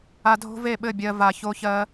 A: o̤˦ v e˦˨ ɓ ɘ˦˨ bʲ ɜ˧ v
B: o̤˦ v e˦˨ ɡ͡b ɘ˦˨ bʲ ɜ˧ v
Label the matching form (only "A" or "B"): A